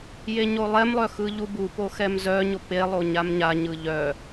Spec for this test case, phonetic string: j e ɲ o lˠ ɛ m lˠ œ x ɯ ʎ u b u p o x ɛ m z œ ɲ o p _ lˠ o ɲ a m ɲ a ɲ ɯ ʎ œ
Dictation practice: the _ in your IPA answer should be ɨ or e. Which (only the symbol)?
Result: e